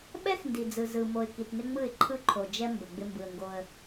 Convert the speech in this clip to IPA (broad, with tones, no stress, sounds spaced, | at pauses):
ɓ ɛ˦ x n d i˨ d͡z ɯ˨ z ɯ˨ m o˨ ɪ̯ k i˨ t n ɪ˦ ŋ͡m ɯ˦˨ ɪ̯ ǃʰ ɯ˦ ǃʰ o˨ d͡ʒ ɛ˦ m b ə˨ ɡ͡b ɪ˦ m b ɯ˨ ə̯ ŋ ɡ o˦ ə̯